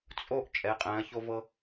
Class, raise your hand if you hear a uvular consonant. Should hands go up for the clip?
yes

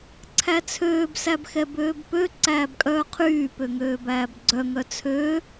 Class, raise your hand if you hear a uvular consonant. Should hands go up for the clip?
yes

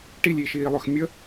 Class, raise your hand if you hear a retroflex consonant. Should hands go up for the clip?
yes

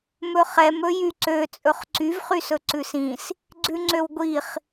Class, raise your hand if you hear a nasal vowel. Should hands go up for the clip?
yes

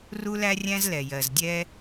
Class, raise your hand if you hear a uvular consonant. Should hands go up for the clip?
no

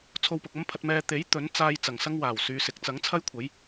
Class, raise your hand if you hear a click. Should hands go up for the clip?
no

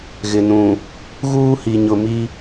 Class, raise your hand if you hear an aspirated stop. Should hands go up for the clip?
no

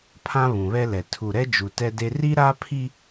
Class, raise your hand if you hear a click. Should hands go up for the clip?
no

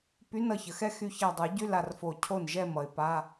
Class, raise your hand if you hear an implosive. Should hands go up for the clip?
no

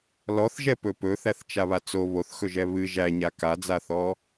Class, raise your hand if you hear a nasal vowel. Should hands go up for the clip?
no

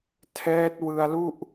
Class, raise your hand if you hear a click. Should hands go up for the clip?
no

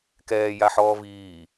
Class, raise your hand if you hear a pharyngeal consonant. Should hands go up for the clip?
yes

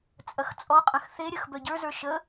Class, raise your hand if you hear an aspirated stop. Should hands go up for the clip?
no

